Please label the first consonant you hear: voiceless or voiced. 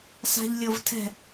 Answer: voiceless